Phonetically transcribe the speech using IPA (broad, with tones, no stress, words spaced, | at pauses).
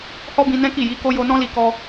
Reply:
hɔ˦bĩ˧nɛ̃˦ki˦˨ ji˨˦ ko˦ jo˧nɔ̃˦ li˦ kɔ˧